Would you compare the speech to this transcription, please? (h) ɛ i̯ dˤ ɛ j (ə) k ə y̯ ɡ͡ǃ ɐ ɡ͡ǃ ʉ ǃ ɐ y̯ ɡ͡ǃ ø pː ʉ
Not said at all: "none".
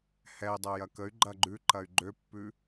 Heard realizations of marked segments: h, ɐ

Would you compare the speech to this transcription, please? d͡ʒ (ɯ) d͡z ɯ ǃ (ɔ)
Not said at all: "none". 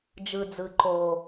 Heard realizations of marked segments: ɯ, o

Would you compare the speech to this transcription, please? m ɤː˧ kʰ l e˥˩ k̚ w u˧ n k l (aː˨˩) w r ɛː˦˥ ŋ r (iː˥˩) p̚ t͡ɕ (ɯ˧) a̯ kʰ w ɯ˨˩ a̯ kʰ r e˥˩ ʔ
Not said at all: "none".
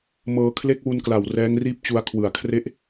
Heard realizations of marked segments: a˨˩, iː˥˩, u˧

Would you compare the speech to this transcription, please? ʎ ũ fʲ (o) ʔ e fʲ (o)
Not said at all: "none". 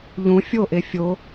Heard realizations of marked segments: o, o

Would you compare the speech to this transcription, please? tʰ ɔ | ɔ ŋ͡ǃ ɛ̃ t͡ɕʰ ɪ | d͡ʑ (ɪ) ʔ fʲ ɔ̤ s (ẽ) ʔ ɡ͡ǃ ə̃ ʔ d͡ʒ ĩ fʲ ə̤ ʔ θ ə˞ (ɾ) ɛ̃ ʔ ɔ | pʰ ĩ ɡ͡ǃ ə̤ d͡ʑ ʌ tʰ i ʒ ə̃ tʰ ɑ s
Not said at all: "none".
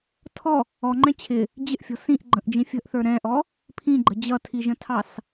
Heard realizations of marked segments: ɪ, ĩ, ɾ

